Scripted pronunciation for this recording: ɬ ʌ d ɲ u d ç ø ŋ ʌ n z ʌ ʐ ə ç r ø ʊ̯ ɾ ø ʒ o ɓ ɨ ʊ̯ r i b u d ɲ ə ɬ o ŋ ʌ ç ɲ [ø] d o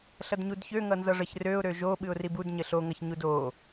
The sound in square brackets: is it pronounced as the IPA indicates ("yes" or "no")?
no